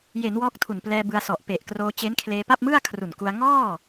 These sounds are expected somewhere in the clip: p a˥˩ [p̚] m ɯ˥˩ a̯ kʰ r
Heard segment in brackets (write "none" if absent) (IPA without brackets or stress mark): p̚